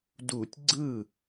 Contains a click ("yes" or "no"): yes